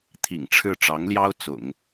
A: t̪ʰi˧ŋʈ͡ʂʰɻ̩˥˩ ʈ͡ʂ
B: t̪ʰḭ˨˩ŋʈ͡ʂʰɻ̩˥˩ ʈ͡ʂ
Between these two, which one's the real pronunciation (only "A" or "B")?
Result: B